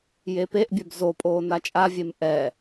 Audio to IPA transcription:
jepeʔbʲœb zo pʼoːnat͡ʃʼavʲem ʔɛ

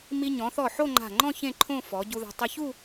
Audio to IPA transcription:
mi˧ ɲɔ̃˩˧θɔ˧˩ ħo˥˧ŋ͡ǃa̤˧˩ŋ͡ǃɔ̃˥˧ çẽ˥˧ǃʰõ˥˧ fɔ˩˧ ɟu˧ða̤˧ tˤɪ˧çu˥˧

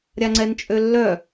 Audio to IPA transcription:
ɾʲaŋ͡ǀɛnt͡ʃʼølːœ

